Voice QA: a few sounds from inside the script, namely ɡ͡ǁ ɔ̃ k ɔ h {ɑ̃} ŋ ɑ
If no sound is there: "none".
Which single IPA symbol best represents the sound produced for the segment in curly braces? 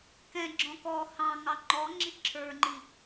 ɑ̃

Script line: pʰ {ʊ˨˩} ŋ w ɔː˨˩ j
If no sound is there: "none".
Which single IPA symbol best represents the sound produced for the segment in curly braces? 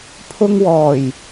ʊ˧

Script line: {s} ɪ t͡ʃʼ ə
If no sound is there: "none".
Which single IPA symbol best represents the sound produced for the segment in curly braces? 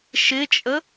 ʃ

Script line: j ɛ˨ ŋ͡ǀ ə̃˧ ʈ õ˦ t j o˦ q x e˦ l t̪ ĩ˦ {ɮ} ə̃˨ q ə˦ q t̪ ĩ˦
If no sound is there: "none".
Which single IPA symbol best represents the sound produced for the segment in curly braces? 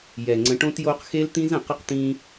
z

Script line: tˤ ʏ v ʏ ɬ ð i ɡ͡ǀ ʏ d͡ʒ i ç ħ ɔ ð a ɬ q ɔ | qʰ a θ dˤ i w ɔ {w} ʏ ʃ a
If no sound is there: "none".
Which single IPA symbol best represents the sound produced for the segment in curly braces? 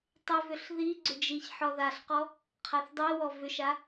v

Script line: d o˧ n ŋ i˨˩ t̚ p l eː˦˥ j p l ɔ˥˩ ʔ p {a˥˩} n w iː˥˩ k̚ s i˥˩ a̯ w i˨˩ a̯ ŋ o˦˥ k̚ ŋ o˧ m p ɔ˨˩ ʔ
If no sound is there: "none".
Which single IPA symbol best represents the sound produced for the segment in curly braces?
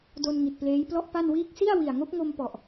a˥˩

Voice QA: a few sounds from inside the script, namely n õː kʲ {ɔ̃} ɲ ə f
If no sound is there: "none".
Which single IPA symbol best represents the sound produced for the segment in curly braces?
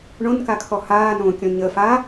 ɔ̃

